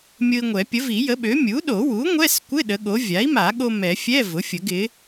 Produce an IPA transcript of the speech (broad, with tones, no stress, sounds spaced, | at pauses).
mʲ ʊ˧ i̯ ŋʷ ɛ˨˩˦ pʲ ə˩˥ v i˨˩˦ j ə˩˥ ɓ ø˩˥ mʲ u˩˥ ɗ o˨˩˦ w u˩˥ ŋʷ ɛ˧˥˧ s kʷ ɪ˧˥˧ ɗ ə˩˥ ɠ o˩˥ vʲ a˩˥ i̯ m a˨˩˦ ɠ o˧ m ɛ˨˩˦ fʲ ɛ˧˥˧ v ʊ˩˥ fʲ ə˨˩˦ ɡ ɪ˩˥